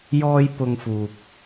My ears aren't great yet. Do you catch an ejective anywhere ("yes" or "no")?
no